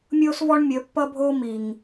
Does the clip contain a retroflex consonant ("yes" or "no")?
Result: yes